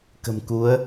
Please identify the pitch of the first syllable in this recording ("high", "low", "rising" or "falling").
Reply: low